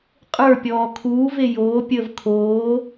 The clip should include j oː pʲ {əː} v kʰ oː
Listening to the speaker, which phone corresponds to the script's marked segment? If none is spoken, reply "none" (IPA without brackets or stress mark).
əː